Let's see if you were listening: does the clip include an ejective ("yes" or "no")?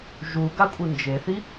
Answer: yes